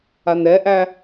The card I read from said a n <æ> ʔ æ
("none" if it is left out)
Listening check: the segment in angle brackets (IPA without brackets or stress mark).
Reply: ɛ